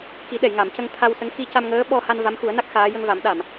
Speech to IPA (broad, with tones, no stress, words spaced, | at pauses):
ki˨˩˦ɗɛ˨˩˨jŋa˨˩˨mcə˧ŋ t̪ʰa˧wsə˧˥ŋ xi˧ca˧mŋəː˧˥ ɓɔ˧ ha˧n va˧˥mxu˨˩˦ə̯na˦˥k̚ xaː˧˥ jə˧ŋva˨˩˦mɗa˨˩˨m